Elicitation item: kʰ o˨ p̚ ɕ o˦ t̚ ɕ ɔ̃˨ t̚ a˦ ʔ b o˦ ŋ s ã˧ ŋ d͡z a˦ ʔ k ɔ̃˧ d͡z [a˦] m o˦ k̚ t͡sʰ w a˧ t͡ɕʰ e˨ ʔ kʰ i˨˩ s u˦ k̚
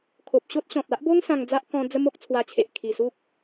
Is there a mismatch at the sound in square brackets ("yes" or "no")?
yes